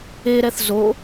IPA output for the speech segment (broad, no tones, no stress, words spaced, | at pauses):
eɾɛθ zo